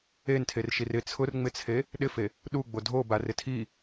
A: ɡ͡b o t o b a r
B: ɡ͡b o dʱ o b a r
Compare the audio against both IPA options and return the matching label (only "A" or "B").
B